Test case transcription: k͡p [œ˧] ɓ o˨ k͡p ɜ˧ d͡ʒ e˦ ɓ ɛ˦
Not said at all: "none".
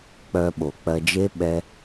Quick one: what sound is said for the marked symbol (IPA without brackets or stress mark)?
œ˧